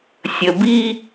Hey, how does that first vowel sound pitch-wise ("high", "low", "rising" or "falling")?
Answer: low